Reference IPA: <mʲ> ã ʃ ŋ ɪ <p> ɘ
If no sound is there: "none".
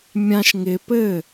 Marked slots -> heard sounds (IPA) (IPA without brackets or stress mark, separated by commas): mʲ, p